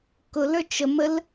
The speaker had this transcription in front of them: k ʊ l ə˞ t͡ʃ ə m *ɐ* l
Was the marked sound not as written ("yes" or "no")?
yes